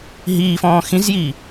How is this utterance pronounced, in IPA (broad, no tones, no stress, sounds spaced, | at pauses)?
ɦ iː f ɔ̃ː x ĩ z j iː